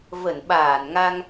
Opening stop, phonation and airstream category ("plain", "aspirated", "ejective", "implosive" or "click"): implosive